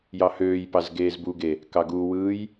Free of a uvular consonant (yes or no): yes